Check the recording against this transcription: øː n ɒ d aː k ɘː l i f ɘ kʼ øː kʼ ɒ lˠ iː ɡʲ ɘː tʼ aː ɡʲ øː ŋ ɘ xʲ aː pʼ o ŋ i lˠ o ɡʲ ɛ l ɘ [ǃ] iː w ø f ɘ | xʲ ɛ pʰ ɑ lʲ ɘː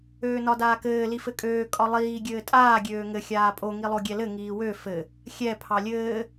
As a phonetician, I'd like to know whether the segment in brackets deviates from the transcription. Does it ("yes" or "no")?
yes